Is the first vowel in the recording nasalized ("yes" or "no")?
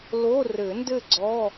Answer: no